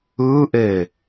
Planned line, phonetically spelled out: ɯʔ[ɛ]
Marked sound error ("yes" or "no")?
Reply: yes